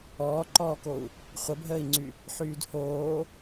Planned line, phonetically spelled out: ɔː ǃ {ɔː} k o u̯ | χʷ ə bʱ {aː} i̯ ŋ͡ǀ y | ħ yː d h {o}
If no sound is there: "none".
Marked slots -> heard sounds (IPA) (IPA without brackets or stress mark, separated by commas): ɔː, əː, oː